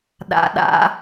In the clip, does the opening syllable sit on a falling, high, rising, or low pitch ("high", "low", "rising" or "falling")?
low